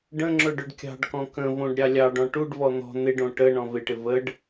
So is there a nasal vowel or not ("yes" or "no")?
yes